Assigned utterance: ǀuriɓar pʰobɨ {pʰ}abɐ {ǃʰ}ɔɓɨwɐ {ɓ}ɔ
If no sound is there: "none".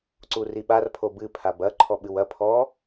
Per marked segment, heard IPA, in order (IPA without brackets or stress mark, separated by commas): pʰ, ǃʰ, pʰ